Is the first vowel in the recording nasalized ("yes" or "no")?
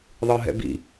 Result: no